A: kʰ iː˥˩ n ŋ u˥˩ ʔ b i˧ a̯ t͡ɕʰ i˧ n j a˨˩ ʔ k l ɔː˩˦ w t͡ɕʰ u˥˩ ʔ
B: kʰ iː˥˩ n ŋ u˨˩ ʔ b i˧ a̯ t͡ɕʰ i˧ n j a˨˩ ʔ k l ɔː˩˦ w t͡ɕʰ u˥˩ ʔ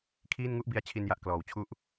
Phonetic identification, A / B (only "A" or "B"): A